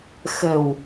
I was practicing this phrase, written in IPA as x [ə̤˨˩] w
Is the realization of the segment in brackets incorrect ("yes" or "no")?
no